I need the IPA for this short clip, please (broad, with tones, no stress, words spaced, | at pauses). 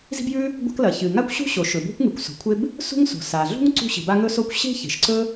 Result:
zi̤˥bjʉ˥ | ɡʷa̤˥k lɐ˩ çɨ˩ ŋa˥kʷɕṳ˥ɕo˩ ʃɵ˩bo̤˥kʷŋɨ˩kʷ so̤˩kʷʰe˥b | sṳ˥ŋso̤˩ sa˩ɮṳ˥ŋ ǀṳ˥ɕi̤˩ba˥ ŋɵ˥so˥kʷ ɕe̤˥ çe̤˩ʃǀɵ˥